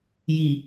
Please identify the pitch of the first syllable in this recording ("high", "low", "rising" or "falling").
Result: low